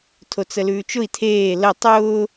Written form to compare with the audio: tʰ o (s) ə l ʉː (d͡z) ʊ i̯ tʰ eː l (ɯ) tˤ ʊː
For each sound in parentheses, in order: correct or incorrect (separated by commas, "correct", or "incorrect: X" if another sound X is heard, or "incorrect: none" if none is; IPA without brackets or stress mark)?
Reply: incorrect: t͡s, incorrect: t͡ʃ, incorrect: ə